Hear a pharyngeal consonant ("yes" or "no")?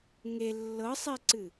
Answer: no